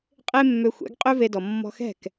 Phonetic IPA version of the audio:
qʼ e˥ mː ø˧ xʷ ɛ̰˩˥ ɡ qʼ ø˥ v e˧ d ɔ˩ mː ɔ̤˧ x ɛ̤˥˩ k

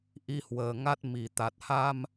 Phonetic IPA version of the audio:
ʔ i˧ h w əː˨˩ ŋ a˦˥ t̚ m i˧˩ t̪ a˨˩ t̚ h a˧ m

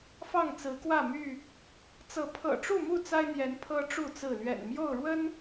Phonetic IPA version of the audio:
f ɑ˥˨ ŋ t͡s ɹ̩˨˦ k w ä˥˨ m y˥˨ | t͡s ɤ˨˦ pʰ ɤ̰˨˩ ʈ͡ʂ u˥˨ m u˥˨ t͡s a˦ ɪ̯ n̪ j ɛ˨˦ n pʰ ɤ˦ ʈ͡ʂ u˥˨ t͡s ɹ̩˥˨ l ɥ ɛ̰˨˩ n m j o˥˨ ʊ̯ ɻ w ə˦ n

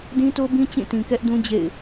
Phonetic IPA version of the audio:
d ĩ˦ t o˦ b ĩ˦ t͡ɕ ĩ˦˨ t ĩ˨ k ɛ˦ ʔ d ũ˦ d͡ʑ ḛ˦˨ ɪ̯

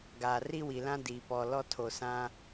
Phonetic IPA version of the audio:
ɡ a˨ r i˦ w i˨ l ã˦ d i˨ p ɔ˨ l ɔ˦ tʰ o˨ s ã˦

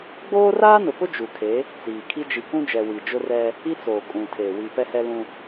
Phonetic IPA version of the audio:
ɡ͡b oː˦ r aː˦ n ʊ˨ p ʊ˦ d͡ʒ u˨ kʰ e˨˦ | t͡s iː˨ kʰ i˦ d͡ʒ i˨ k ũ˦ d͡ʒ ɛ˨ w i˨ d͡ʒ ʊ˦ r ɛ˦ | i˦ t͡s oː˨ kʼ ũ˨ tʰ e˨ w i˨ p ɛ˦ h ɛ˦ l ũ˦

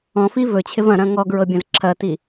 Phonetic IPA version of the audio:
ɔ̃ f i v ɵ t͡ɕʰ ɪ v ɐ̃ ɾ ɐ̃ ŋ ɔ ɡ ɹ ɤ bʲ ɐ̃ z ǁʰ ɐ t i

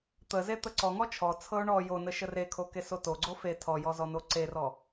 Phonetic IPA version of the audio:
t̪ ə z e t̪ ə ǀ ɔ ŋ ɔ t͡ʃʰ ɔ t͡sʰ ɤ ʊ̯ ɳ ɔ j o n ə ʃ ə r e kʰ o k e s o t o ɡ͡ǀ o f e tʰ ɔ j ɔ z ɔ n o ǀ e r ɔ

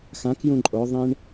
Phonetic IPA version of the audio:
x ã k j ũ ǃʼ o ðˤ ĩ ɳ

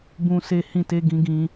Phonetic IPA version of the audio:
b ũ˧ s e˧ h ĩ˧ t e˧ ɡ ĩ˧ ɡ ĩ˧

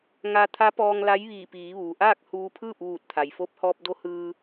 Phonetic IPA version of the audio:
ŋ a˧ t̪ʰ a˧˥ p ɔː˧ ŋ l a˧˥ j ʋ iː˧˩ p iː˩˧ ʋ uː˩ ʔ aː˥˨ k̚ h uː˧ pʰ ɯː˥˨ p̚ ʋ uː˧˩ t̚ t̪ʰ a˩ j f o˧˥ p̚ h ɔː˧ p̚ d o˧˥ h ɯː˧

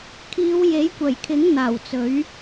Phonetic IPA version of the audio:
kʰ iː˨˧ w j e˨˥ j kʷ ɐ˨˩ j kʰ ɪ˨˥ ŋ n̪ aː˨˩ w t͡s ɵ˨˥ ɥ

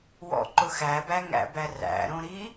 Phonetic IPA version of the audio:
w ɔ̰ ǃ ʊ x æ b æ ŋ æ̰ b æ r æ̰ ɾ õ ɾ i

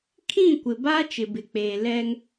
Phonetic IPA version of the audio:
kʰ ĩ˦˨ kʷ ɪ˨ b a˦ t͡ʃ ɪ˨ b ɪ˨ k͡p eː˨ l ɛ˦ ŋ

